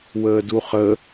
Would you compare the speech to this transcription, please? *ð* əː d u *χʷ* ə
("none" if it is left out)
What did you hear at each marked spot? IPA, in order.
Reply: w, χ

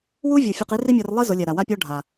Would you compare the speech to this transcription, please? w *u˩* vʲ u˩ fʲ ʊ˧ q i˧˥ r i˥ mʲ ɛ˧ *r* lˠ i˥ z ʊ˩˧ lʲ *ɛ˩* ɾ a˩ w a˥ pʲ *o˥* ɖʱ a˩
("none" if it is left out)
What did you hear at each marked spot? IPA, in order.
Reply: u˥, r, ɛ˩, ɔ˥

